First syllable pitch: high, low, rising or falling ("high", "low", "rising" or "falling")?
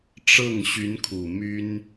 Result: falling